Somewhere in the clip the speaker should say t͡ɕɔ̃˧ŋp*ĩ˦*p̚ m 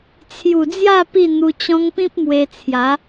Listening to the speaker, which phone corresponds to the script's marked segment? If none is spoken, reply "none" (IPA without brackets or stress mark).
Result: ĩ˦